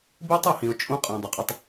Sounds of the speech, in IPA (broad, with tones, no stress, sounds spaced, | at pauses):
b i˦ tˤ o˨ h ĩ˨ ʊ̯ t͡ʃʼ ũ˦ qʼ æ̃˨ dˤ u˨ qʼ e˦ tˤ